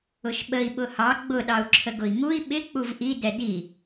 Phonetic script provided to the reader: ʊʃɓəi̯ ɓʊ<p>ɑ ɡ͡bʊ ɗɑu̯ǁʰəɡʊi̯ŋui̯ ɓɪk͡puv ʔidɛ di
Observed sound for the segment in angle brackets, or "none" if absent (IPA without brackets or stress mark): h